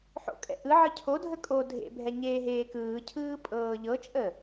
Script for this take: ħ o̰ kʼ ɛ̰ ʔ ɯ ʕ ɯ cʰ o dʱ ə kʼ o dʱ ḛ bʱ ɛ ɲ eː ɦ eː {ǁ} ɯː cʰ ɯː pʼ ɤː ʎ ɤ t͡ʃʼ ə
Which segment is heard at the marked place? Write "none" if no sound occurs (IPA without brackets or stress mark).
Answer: k